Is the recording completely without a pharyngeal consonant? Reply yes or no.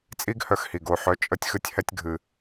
no